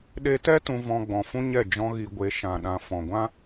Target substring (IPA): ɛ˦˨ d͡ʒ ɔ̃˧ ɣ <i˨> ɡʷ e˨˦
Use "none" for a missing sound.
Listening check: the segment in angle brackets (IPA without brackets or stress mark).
i˨